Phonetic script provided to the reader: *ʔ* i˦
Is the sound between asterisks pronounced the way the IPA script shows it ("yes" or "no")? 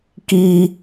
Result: no